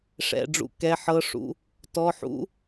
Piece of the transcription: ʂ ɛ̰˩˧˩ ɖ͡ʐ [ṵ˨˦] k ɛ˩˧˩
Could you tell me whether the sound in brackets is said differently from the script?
no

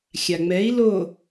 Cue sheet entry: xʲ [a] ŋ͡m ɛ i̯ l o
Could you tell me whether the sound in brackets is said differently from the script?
no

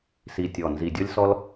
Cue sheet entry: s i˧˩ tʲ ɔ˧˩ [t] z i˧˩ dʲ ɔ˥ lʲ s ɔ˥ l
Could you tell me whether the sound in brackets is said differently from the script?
yes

